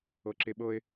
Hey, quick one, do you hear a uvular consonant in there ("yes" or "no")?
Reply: no